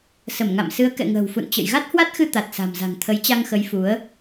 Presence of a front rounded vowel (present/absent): absent